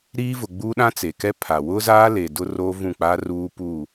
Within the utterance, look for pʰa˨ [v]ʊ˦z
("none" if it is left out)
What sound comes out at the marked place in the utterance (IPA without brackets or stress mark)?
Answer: w